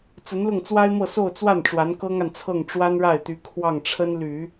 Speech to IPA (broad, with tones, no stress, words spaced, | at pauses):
t͡sə˧˥nlʊ˥˩ŋt͡swa˥ɪ̯mɤ˥˧ so˥˧ʊ̯t͡swa˥˩n ʈ͡ʂwa˧˥nkɤ˥ŋa˨nt͡sʰɤ˥˩ŋ ʈ͡ʂwa˥nɻa˥˩ɪ̯t̪y˧˥ kʰwɑ˥˩ŋʈ͡ʂʰə˥nly˨˩˦